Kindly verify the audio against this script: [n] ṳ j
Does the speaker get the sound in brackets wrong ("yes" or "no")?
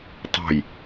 yes